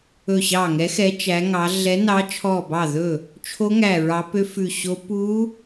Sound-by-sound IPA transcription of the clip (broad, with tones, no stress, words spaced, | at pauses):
ɵ˧˩ɕɑ˧˩ŋɛ˨˦xɛ˨˦ t͡ʃæ˨˦ŋɑ˨˦ ɮɛ˨˦nɑ˨˦t͡ʃʰɔ˧˩ bɑ˧˩ðɵ˧˩ | t͡ʃʰo˦˥ŋæ˧˩ɹɑ˨˦ pø˦˥fʉ˧˩ɕo˦˥ pu˦˥